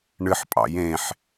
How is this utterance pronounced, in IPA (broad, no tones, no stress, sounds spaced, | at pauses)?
ɳ ɨ ħ pʼ ɑ̰ j ẽ ħ